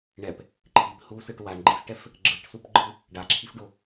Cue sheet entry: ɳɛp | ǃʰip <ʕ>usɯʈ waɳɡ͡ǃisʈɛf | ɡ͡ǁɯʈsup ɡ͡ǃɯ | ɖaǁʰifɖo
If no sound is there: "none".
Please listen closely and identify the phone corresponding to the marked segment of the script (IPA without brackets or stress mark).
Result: h